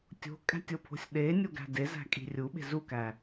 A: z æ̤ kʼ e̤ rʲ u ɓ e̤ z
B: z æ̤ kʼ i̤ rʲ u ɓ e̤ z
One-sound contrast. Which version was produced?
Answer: B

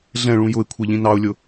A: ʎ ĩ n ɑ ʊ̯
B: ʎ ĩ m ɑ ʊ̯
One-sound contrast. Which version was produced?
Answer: A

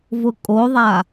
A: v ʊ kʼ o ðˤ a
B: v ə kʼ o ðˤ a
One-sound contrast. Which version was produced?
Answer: A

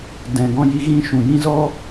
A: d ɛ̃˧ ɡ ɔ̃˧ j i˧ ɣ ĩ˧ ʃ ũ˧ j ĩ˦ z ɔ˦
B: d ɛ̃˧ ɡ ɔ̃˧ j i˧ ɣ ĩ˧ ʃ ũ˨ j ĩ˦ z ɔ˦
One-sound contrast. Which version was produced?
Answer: B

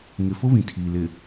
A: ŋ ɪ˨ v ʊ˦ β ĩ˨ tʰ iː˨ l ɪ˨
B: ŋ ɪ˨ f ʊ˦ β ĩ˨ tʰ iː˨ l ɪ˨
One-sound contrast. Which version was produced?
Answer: B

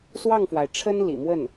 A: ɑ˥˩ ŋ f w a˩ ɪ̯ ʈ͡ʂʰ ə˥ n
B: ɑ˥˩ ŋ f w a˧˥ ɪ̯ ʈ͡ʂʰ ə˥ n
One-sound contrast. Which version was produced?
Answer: A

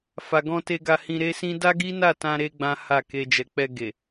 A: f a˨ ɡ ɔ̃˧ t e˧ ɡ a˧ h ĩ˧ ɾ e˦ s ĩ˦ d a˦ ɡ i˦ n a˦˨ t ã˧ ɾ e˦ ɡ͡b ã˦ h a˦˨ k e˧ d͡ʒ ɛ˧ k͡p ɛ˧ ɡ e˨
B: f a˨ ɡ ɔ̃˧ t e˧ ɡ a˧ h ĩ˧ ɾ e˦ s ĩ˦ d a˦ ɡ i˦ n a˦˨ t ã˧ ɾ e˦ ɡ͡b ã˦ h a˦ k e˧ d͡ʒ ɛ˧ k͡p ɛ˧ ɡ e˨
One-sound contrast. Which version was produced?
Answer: A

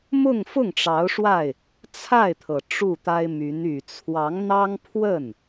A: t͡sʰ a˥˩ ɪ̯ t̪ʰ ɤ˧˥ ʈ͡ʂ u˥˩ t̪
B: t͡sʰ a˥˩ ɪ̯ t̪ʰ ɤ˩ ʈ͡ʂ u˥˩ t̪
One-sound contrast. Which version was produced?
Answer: B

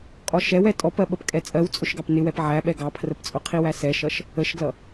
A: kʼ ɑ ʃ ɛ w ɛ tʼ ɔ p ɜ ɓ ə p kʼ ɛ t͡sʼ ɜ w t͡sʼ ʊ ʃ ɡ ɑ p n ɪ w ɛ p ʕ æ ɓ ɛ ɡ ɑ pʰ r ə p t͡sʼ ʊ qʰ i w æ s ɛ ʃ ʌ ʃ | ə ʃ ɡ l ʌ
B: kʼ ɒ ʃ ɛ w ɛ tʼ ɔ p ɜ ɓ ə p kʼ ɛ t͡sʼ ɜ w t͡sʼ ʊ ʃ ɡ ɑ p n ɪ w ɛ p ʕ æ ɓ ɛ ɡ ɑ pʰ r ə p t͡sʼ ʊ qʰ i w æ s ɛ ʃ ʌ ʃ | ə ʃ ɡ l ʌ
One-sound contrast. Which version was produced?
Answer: B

